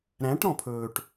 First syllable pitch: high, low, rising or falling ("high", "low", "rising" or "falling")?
rising